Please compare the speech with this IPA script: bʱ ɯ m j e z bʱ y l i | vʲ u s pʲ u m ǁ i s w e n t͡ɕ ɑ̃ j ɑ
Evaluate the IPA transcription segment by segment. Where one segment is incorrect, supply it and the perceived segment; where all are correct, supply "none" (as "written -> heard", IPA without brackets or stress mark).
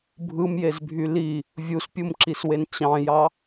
none